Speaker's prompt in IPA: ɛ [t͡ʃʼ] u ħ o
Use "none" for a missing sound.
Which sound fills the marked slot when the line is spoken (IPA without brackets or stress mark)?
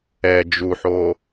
d͡ʒ